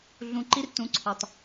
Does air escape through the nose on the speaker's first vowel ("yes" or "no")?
yes